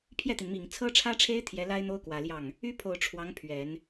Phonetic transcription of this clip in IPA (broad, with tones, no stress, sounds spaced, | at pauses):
pʰ j ɛ˥˩ t̪ i˩ n m i˨˩ ŋ t͡sʰ ɤ˥ ʈ͡ʂʰ ä˥ ʈ͡ʂʰ e˥ ɪ̯ t̪ʰ j ɛ˧˥ l a˥ ɪ̯ n̪ o˥ ʊ̯ k w ä˨˩ l j ɑ˥˩ ŋ | y˥ pʰ o˨˩ ʊ̯ ʈ͡ʂʰ w ɑ˧˥ ŋ pʰ ɥ ɛ˨˩˦ n